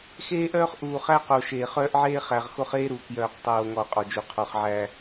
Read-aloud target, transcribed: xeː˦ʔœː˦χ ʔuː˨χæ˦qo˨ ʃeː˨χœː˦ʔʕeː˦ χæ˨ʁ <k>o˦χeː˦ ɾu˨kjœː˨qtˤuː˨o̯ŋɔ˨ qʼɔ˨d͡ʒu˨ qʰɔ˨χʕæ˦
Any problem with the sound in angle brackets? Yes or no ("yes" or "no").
yes